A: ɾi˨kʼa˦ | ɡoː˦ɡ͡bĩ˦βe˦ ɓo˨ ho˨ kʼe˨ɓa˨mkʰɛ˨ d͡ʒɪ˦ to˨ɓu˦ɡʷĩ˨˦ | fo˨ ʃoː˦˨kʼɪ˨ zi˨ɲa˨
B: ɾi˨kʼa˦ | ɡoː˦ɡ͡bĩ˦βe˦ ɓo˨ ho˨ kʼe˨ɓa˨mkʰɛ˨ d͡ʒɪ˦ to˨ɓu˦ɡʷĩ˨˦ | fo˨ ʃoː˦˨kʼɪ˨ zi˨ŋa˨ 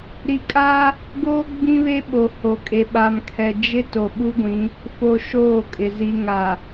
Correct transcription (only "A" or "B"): B